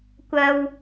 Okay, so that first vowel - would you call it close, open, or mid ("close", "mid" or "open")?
open